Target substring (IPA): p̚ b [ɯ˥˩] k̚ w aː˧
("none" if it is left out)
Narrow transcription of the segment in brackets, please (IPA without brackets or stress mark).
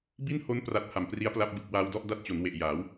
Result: ɯ˨˩